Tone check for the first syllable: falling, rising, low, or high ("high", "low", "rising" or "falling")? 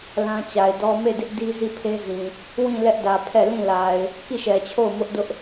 high